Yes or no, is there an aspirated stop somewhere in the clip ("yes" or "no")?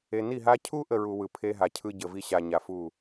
yes